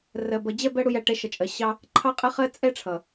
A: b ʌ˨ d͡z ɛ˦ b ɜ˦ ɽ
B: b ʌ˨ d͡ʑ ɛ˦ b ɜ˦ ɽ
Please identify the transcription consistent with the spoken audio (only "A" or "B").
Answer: B